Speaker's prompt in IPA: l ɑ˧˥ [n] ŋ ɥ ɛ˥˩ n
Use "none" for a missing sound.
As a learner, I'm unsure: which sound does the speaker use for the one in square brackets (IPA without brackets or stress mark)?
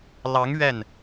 none